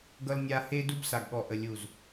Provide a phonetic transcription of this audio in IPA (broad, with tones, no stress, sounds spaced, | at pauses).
ɡ ʌ˦ l nʲ a˦ h e˦ d u˦ b s a˨ ɡ ɠ ɔ˨ ʔ ə˨ lʲ u˨ z